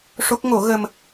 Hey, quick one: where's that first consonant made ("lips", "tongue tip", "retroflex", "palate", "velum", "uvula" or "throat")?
retroflex